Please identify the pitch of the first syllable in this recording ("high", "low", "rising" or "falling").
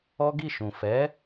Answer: high